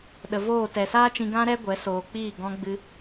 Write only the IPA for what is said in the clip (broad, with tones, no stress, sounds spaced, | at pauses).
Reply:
ɗ ə˨ v oː˦˨ t ɛ˨ s aː˦ t͡ʃ ĩ˧ ɡ ã˦ ɾ ɛ˦ ɡʷ ɛ˨˦ s oː˨ k͡p iː˦˨ ɡ ɔ̃˧ ɡ͡b ɨ˧